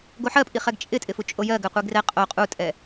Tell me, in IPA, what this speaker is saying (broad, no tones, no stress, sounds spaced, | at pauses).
ɡ o ħ ɜ pʼ i χ ɛ ɡ t͡ʃʼ ɪ tʼ ɪ f u t͡ʃʼ o j ɜ ɡ ɘ qʷ i ɡ r ɛ qʼ o qʼ u tʼ ɛ